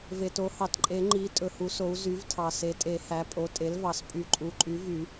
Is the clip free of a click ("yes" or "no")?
no